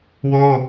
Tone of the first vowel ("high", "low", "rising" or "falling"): high